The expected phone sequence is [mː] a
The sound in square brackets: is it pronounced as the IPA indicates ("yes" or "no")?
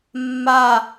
yes